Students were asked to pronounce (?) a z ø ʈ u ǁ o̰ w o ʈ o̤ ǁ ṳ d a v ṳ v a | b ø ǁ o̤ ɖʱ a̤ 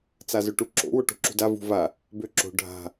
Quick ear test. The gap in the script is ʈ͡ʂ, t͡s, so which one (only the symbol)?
t͡s